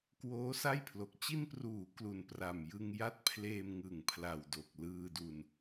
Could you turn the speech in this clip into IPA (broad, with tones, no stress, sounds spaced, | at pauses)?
k w oː˦˥ s a˥˩ j pʰ l o˨˩ k̚ t͡ɕ i˧ n p r uː˩˦ k l u˨˩ n p r a˨˩ m j ɯ˧ ŋ j a˥˩ t̚ pʰ l eː˧ m ŋ ɯ˨˩ ŋ pʰ l a˨˩ w d o˨˩ k̚ l ɯː˧ d u˧ n